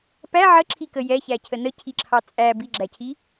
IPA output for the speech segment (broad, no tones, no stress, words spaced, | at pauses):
pæ ʕəǁʰikə jɛçæcʰə nəcʰiǁʰɑ t͡sʼæ biɡ͡ǁæcʰi